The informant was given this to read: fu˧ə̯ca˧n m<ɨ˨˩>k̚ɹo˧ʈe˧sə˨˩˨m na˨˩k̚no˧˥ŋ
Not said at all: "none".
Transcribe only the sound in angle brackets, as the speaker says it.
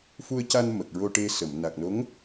ə˨˩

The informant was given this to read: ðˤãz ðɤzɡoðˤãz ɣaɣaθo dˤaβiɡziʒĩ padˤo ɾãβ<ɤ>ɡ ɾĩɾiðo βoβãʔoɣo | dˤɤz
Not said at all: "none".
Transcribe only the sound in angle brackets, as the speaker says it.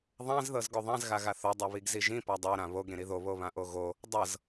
o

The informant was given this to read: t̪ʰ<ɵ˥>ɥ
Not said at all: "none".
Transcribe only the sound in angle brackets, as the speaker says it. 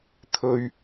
ɵ˥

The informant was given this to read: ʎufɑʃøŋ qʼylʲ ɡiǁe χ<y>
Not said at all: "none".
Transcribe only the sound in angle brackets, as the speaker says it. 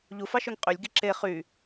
y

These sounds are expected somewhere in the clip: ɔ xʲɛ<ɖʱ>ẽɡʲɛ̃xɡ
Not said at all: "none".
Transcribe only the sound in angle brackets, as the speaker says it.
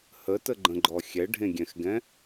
ɖʱ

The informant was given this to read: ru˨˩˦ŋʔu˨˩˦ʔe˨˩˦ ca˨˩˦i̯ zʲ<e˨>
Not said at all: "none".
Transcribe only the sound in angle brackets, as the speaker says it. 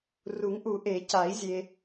e˨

